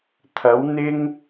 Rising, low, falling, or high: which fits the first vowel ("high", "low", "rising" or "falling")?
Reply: rising